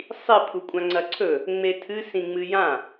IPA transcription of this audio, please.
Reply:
sˤ i pʰ u kʷʼ ã ŋ͡ǀ ɐ ǀʰ ɵ | ŋ͡m e tʰ ɨ s ĩ ŋ͡m ɨ j ã

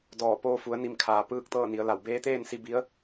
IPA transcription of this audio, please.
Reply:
d ɔː˧˩ p oː˧ f u˩˧ ə̯ n i˧˩ m kʰ aː˩ p ɯː˥˨ k̚ t̪ ɤː˥˨ n i˩˧ ə̯ l a˧˩ w b eː˧˥ t̪ eː˥˨ n s i˧ b i˧˥ ə̯

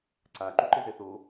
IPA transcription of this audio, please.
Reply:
ǀ a ǃ u ǃ ɪ z ɛ θ o

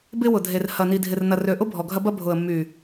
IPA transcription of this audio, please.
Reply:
b ɪ˦ w ʊ˨ dʱ e˨ r h ɐ˨ n i˨ dʱ ɪ˨ r n ɐ˨ r ø˨ ʔ ʊ˦ bʱ ɔ˨ ɡʱ ɐ˦ b ɐ˦ bʱ ʊ˨ ə̯ mː y˨

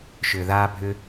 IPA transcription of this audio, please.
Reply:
ʃ ʏː˨ ð aː˦ bʱ ʏ˦

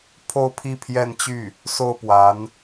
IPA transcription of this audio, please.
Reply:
pʰ o˥˧ ʊ̯ pʰ i˥˧ pʰ j ɛ˥˧ n t͡ɕ y˥˩ | s o˥˩ ʊ̯ p w a˧˥ n

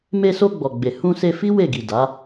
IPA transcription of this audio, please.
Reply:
m e˧ s o˧ ɡ͡b ɔ˨ ɡ͡b e˨ h ũ˧ s e˧ f i˦ w e˦˨ ɡ i˨ d a˨˦

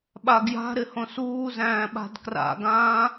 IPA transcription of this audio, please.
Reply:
ɓ a ɡ j a̤ ɾ ɪ h õ s uː z æ̃ː ɓ a̤ d k r a̰ ɡ ãː

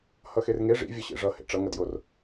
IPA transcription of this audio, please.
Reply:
h ʌ x e r ŋ e ʐ ḭ vʲ ʌ ɕ ḛ ʐ ʌ h ḛ ʈ͡ʂ ʌ ŋ ʌ d j o r

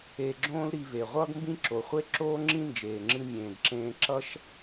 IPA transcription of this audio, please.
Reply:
e˧ ɡ͡ǁ õː˥ l ɾ i˧ v e˩ ʁʷ ʌː˥ ɡ m b ĩ˥ ǁ o˩ χʷ e˥ ǁ oː˥ ŋ͡ǁ ĩ˥ n d͡ʒ eː˩ ŋ͡ǁ ɨ˧ mʲ ẽː˩ ɡ ǁ ẽː˧ ǁ ʌ˥ ʃ

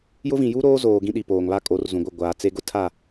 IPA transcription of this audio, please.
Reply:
j ʊ˦ v ĩ˨ j u˦ ɾ oː˦ z oː˨ ɡ ĩ˦ ɗ i˨ p oː˨ ŋ β a˦ kʼ o˨˦ r z ũ˨ ɡʷ ɪ˦˨ ɡʷ aː˨ t͡s e˦ ɡ ʊ˦ tʰ a˦˨

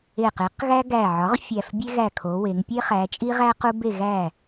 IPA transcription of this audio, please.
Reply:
e˧˩ q e˩˥ q ɣ æ˦ ɡ æ˧˩ ʕ ɒ˩˥ ʁ fʲ æ˧˩ f bʲ e˦ ɣ æ˧˩ kʰ o˩˧ w e˩˧ ŋ pʲ e˦ χ æ˩˧ t͡ʃʼ i˦ ʁ æ˦ q u˦ b e˥˨ ɣ æ˥˨

